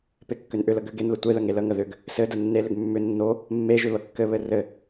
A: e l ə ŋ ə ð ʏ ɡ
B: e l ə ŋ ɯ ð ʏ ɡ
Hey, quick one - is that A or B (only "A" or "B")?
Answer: A